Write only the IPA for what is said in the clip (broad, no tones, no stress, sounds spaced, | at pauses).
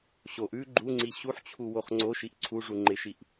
ɕ o ʔ ʉ ɡ͡ǃ u ŋ͡ǀ i ɕ u ħ t͡ɕʰ u w o χ ŋ͡ǀ o ʃ i ʔ ǀʰ u ʐ u ŋ͡ǃ ɪ ʃ i ʔ